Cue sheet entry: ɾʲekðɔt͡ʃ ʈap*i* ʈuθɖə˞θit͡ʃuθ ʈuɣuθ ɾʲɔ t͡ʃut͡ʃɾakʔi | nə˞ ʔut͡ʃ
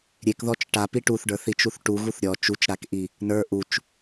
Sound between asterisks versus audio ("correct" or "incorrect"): correct